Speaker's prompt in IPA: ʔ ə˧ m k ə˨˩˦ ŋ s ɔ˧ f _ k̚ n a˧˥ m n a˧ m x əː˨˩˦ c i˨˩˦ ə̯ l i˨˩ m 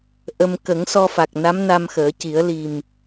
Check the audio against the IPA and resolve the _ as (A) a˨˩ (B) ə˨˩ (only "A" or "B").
A